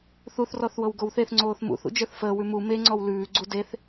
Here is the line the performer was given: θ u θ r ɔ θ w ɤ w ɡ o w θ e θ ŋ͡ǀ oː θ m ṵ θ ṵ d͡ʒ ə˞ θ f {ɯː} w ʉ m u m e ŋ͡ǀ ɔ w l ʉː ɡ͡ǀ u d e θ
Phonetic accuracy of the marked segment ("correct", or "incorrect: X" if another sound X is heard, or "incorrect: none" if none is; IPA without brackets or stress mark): incorrect: əː